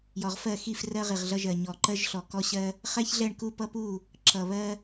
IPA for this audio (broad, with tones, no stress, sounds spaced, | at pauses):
j ɔ˨ ʁ f ɜ˦˨ x i˦˨ f r ɜ˦ ʁ i˨ ʁ ɮ ʌ˦ ʒ ɜ˨ ɲ ɔ˨ ǃ ɜ˦ ʒ ɬ ɔ˨ k ɔ˦ ɕ ɜ˦ | χ ɛ˦ ç ɮ ɛ˦˨ ɳ k u˦˨ p ʌ˦ p u˦˨ | ǁ ʌ˨ β ɜ˦